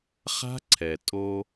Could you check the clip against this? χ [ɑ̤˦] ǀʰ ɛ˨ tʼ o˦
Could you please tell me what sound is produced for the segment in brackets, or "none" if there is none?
a̤˦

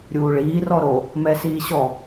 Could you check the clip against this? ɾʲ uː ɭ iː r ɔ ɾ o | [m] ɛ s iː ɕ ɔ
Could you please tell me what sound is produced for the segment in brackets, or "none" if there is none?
m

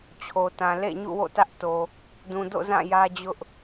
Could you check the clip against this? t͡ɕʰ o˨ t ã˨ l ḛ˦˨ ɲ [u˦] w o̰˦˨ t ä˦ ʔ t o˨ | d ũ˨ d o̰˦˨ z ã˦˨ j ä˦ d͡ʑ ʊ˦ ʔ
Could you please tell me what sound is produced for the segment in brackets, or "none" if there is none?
ṵ˦˨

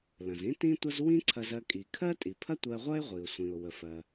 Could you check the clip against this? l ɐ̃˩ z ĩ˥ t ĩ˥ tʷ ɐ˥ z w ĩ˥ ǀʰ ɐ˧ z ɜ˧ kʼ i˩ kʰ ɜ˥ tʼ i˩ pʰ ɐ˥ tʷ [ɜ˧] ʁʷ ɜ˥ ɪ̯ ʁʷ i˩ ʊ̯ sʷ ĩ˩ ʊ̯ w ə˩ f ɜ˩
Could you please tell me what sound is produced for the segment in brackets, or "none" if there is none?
ɜ˧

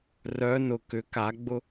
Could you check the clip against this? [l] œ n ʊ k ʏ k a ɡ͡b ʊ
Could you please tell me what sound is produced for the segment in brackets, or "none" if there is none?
r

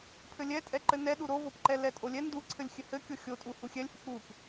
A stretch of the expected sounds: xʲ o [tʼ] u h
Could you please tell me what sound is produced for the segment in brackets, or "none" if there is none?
tʼ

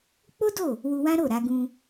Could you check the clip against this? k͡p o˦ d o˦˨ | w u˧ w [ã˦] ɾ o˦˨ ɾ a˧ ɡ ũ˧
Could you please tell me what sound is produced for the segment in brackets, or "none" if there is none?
ã˦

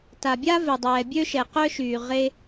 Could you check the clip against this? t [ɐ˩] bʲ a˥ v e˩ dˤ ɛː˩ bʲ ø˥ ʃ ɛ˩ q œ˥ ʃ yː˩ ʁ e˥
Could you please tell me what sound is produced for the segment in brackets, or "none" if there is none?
a˩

